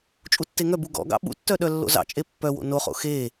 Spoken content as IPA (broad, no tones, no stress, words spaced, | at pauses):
t͡ʃʼutːeŋœbu ɡɔ̰ɡɑ̰ ɓṵtːœ ɗœlːo̰zɑ̰t͡ʃʼe pːœwo̰ noχo̰ xe